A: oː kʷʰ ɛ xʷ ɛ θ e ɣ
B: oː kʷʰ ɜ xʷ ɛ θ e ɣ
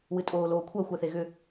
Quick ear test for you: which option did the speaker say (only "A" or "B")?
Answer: B